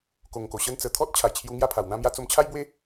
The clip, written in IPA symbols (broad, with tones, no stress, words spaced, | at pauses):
ko˨˩ŋko˨˩ɕə˦n t͡sə˨˩t̪ʰɔ˦t̚ t͡ɕʰa˨˩jt͡ɕʰju˧ ŋja˥˧pʰa˨˩wn̪ã˦mja˦ t͡so˧mt͡ɕʰa˦jbwe˦